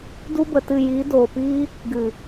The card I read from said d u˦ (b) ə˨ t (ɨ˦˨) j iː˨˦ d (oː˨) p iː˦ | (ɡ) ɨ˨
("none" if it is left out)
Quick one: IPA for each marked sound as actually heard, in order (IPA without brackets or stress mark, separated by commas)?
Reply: b, ɨ˦˨, oː˨, ɡ